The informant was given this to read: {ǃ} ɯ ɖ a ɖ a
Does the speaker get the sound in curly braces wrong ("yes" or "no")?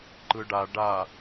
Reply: no